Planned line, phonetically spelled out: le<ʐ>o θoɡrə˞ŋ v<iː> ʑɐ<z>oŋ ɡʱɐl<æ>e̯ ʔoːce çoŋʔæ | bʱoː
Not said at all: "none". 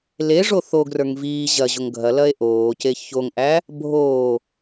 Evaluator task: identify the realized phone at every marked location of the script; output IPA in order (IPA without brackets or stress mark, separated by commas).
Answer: ʐ, iː, ʑ, ɐ